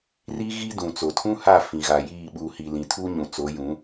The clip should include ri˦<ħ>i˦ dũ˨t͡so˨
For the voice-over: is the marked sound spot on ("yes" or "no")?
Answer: no